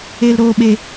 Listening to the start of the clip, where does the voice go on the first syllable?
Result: low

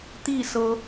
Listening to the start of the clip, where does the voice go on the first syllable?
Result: falling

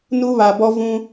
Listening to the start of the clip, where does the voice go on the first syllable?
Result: high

